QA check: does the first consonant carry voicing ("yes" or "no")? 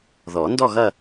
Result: yes